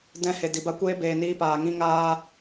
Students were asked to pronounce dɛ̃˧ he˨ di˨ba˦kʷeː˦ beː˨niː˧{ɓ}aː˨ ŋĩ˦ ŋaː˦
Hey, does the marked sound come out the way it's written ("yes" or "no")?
no